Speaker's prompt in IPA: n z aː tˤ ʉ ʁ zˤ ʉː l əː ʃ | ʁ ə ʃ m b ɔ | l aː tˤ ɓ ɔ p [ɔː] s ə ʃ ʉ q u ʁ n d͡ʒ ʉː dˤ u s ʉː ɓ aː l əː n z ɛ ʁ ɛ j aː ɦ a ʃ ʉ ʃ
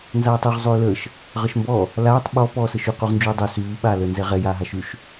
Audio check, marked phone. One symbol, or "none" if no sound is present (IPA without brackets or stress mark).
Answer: ɔː